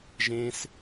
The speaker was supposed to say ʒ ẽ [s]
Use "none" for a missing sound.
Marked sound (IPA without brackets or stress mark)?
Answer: s